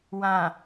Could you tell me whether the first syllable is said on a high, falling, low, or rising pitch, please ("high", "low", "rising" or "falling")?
low